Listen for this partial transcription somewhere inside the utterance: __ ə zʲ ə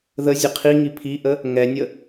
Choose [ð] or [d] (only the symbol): ð